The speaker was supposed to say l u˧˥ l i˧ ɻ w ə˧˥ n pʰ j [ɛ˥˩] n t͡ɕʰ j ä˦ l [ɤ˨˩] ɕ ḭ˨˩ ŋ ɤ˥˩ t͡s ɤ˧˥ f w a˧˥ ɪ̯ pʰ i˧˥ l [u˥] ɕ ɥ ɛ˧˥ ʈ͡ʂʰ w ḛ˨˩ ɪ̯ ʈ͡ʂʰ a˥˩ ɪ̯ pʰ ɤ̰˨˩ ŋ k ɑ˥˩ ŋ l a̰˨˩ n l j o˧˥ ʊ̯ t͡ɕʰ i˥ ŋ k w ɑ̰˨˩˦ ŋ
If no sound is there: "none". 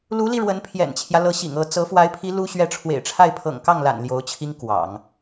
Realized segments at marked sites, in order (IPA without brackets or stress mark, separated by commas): ɛ̰˨˩, ɤ˧˥, u˥